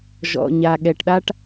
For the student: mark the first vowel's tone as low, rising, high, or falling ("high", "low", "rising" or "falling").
low